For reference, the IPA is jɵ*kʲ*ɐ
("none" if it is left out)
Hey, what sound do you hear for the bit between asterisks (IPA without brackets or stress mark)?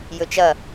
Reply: t͡ʃ